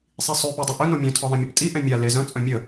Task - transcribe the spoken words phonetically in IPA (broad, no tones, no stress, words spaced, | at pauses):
sˤisˤø pɔdˤeʔœ nomʲœ̃ tʰɔðˤẽmʲeptʼi ʔɛ̃mʲa lezœ̃ t͡sʼœ̃mʲə